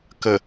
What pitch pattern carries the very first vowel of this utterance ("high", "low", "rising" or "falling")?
low